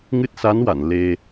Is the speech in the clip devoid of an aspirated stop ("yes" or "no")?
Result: yes